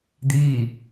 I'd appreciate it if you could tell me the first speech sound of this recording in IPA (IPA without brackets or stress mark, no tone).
d̪